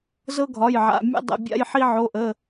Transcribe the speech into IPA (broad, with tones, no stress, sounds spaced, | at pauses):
z ɤ˦ ɡʱ ɒ˩˧˩ j ʕ a̰˩˧˩ mʲ ə̰˦ dˤ ə̰˩˧˩ bʲ a̰˦ j ħ i˦ ʕ o˩˧˩ ʔ ə˩˧˩